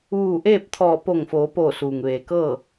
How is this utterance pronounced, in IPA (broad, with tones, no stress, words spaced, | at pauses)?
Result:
ʋuː˧˩ʔeː˥˨p̚t̪ʰɔː˧˩ po˧˩ŋfoː˩˧poː˧˩ suː˩ŋʋeː˩kɤː˥˨